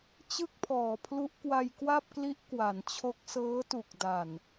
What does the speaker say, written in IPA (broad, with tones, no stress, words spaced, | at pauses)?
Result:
t͡ɕɯ˥˩k̚pʰɔː˩˦pʰlu˦˥ʔ kwa˧jkwa˥˩p̚kli˦˥ʔ kwa˩˦nt͡ɕʰo˦˥k̚ sɤː˦˥tu˨˩k̚da˨˩n